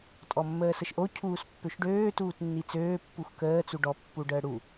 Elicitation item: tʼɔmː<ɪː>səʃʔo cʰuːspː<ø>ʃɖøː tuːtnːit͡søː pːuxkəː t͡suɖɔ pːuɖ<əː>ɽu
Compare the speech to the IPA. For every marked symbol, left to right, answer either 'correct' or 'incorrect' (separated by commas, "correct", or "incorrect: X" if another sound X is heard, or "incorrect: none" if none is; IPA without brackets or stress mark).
incorrect: əː, correct, correct